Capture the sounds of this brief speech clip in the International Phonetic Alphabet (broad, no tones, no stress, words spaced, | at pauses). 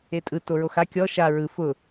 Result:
etʼɯ toɹoxa kʲɔ ʃa ɹɯ fʊ